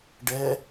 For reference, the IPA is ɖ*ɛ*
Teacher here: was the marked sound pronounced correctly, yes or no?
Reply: yes